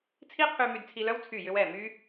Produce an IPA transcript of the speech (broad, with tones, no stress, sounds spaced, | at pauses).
t͡sʰ i˦ qʰ y˧ m y˧ d t͡sʰ i˧ l œ˦ w t͡sʰ y˦˨ j ʏ˦ w ɛ˦˨ m y˦